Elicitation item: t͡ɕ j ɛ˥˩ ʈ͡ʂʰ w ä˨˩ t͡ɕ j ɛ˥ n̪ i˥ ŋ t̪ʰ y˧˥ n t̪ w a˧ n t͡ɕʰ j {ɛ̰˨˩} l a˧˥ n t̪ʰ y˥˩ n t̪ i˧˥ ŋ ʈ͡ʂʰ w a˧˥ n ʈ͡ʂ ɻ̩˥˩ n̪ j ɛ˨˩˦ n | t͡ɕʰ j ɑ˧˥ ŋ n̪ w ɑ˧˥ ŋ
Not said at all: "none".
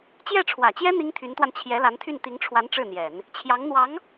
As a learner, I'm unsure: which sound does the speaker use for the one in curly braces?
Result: ɛ˧˥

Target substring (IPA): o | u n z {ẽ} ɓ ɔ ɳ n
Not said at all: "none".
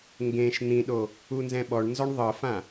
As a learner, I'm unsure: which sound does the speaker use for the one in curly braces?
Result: ɛ̃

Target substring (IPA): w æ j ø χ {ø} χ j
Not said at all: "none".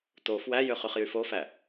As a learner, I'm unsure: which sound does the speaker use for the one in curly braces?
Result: y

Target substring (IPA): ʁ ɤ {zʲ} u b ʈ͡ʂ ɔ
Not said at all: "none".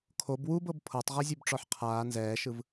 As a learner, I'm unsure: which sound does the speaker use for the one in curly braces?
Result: zʲ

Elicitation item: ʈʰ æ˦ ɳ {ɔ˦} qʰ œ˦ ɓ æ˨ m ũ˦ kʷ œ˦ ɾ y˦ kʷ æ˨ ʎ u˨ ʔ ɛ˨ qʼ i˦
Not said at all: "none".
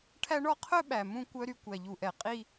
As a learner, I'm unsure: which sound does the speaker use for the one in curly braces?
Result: ɔ˦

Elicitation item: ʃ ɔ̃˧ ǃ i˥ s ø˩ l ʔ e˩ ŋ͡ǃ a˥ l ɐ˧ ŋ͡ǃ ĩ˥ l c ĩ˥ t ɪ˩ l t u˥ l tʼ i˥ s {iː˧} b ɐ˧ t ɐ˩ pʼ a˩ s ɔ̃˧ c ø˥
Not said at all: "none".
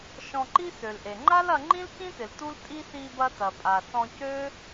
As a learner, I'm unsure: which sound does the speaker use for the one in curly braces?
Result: i˧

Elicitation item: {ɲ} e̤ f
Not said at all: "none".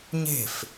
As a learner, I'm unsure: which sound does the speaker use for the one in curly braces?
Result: ɲ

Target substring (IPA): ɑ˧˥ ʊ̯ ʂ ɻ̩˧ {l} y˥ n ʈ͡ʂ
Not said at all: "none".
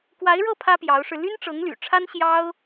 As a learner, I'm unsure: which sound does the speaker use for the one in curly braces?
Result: l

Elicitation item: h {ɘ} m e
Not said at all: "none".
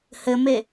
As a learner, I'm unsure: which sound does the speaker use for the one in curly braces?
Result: ɘ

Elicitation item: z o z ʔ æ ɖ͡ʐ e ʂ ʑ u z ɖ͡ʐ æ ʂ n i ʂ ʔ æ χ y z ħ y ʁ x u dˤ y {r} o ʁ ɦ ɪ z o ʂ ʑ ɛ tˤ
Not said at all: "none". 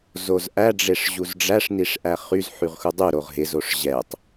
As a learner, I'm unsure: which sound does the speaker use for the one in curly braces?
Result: ɾ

